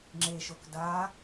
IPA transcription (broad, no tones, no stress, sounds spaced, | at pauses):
ŋ͡ǁ e ʃ o k d a